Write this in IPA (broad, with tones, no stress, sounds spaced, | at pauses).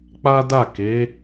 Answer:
k͡p a˦ d a˦˨ k e˨˦